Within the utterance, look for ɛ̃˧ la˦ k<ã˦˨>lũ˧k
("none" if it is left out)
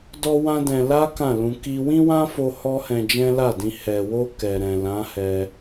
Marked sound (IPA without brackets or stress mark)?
ã˦˨